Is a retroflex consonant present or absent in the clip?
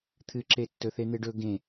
present